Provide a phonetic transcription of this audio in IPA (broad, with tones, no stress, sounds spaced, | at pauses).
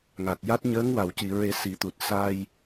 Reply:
ŋ a˨˩ t̚ j a˦˥ t̚ ɲ əː˧˥ ŋ w a˨˩˨ w c i˨˩˨ ɹ e˨˩˦ s i˨˩˦ t̪ u˨˩ t̚ s a˧ j